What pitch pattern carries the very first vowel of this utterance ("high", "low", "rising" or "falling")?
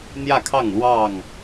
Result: falling